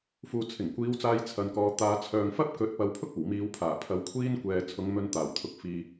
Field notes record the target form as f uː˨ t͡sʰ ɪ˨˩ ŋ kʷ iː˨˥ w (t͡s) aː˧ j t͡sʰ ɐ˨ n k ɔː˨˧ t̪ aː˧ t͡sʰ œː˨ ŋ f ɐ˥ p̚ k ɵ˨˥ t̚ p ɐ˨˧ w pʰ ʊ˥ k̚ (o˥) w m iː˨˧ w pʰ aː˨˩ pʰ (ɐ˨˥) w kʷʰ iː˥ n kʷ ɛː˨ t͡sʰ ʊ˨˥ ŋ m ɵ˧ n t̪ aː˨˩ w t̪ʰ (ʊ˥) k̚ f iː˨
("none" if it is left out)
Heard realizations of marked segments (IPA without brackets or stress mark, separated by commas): t͡s, o˨˩, ɐ˨˧, ʊ˧